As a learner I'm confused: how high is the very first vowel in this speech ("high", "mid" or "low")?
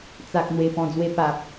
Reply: low